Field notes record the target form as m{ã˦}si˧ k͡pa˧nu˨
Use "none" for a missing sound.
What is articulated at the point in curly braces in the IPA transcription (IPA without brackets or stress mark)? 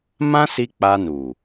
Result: ã˦